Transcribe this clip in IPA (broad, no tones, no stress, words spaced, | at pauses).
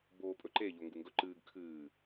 boːpʼɵǃe ʎoŋɡuŋɡɵǃɨːɡ kʰɨː